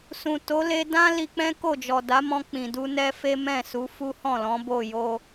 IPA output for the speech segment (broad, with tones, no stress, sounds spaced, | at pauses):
s ũ˨ t o˨˦ l e˧ d ã˦ l i˧ k͡p ɛ̃˦ k o˦˨ d͡ʒ ɔ˨ d a˨˦ m ɔ̃˧ k͡p ĩ˨ d u˧ n ɛ˦ f e˦ m ɛ̃˦˨ s u˨˦ f u˦ h ɔ̃˦˨ l ɔ̃˨˦ b o˦˨ j o˧